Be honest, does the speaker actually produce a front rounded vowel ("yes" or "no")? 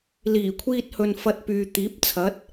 yes